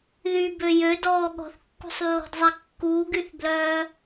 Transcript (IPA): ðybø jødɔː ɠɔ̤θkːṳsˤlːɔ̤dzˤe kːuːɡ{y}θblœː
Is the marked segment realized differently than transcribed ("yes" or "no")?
no